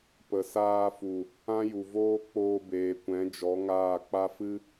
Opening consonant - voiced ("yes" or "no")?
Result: no